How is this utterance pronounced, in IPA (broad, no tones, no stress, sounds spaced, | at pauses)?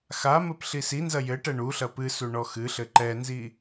x a m ɘ p ɬ i s i n z ɐ j ɘ ʈ ɛ ɳ u ɬ ɐ p ɨ s u ɳ ɔ x ɨ ɬ ɘ ǃ ɛ n z i